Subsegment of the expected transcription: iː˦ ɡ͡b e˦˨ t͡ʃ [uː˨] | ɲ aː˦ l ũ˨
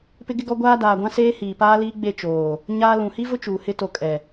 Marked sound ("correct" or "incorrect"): incorrect